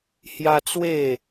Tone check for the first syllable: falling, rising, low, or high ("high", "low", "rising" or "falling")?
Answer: high